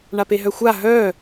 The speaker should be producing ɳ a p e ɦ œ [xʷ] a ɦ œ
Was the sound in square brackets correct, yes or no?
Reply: yes